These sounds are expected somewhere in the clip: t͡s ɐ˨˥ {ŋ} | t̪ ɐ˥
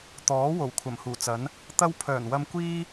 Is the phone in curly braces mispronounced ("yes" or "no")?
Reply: yes